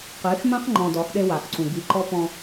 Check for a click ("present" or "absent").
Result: present